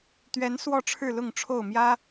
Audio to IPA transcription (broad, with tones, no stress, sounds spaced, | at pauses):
t̪ ɥ ɛ˨˦ n s w ɔ˥˨ ʈ͡ʂʰ ɻ̩˥˨ l ʊ˥˨ ŋ ʈ͡ʂʰ o˥˨ ʊ̯ m j ä˦